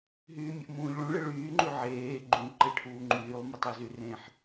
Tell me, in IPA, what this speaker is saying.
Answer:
ɦyːmʲəʔmũːʎɭũ ɭɪɭyː ŋ͡ǃʉʕeː ɡ͡ǃũ ǃeʈʰuːŋ͡ǃyːlˠ mɯtˤʉzyrẽħ

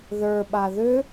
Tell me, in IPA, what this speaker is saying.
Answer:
ðə˞ɓa ðʏ

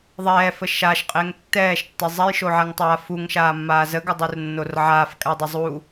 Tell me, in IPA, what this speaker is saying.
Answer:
ðˤɛːfə ʃaʃqʼɪːŋ tːɛːʃtːɪ zˤɛjʃoʕaŋtˤaː fuŋʃaːmːaː zəɡədˤurnːor ʕaːfkʼadˤɪ zˤu

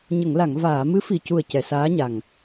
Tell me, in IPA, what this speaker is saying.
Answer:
ɲə˨˩˨ŋla˨˩˨ŋ vaː˨˩˨ mɨ˧˥fi˨˩cu˨˩ə̯ cɛ˨˩˨saː˧˥ɲa˨˩ŋ

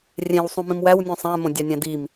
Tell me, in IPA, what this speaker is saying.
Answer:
rʲẽwsˤũmĩm wæwnʲũ sˤæ̃mõdʲɑnʲæ̃ dim

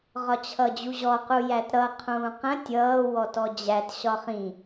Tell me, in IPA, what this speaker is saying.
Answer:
ʁɒt͡ɕʰʌd͡ʑuʑɔ qujætɾʌ qʰũːqə̃ tʲʌː wɔtɔd͡ʑæt ɕɒχĩ

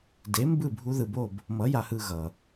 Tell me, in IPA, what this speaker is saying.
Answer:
de˨˥ mbɯ˥˧ bʱu˦˥ðɯ˧bo˥˧b | mʌ˨˥ja˧hɯ˧ ɣʌ˩

